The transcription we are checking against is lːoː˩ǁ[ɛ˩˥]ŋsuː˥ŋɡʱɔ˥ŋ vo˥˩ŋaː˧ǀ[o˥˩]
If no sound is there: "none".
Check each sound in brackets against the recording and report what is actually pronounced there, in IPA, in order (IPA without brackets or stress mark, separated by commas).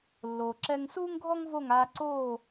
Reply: ɛ˧, oː˥˩